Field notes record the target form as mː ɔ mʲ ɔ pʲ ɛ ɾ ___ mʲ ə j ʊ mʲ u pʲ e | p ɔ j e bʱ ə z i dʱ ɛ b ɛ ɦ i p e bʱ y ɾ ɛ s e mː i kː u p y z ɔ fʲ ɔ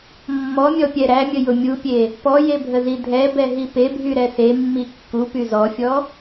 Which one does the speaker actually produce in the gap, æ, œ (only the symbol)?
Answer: æ